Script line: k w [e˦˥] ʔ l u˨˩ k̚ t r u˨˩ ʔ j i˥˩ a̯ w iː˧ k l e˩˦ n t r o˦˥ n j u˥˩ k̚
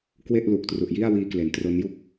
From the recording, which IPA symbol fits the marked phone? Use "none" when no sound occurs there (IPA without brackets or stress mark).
e˥˩